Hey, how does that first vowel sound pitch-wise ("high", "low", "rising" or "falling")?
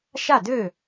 falling